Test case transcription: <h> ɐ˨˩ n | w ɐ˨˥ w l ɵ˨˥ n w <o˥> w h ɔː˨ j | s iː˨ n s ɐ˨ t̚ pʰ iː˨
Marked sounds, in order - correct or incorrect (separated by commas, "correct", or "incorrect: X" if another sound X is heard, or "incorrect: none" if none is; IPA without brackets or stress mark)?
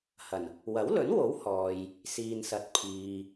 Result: correct, incorrect: o˨˥